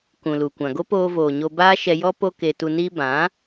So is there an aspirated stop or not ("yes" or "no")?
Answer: no